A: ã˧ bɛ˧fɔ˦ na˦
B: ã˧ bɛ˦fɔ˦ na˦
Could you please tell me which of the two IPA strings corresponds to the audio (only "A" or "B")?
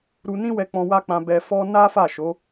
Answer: A